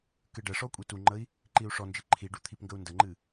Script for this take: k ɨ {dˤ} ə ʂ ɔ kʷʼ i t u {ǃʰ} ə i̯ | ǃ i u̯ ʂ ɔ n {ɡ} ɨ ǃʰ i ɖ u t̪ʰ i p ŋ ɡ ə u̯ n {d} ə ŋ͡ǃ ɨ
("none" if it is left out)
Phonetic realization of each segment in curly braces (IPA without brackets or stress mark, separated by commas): ɖ, ŋ͡ǃ, d͡ʒ, d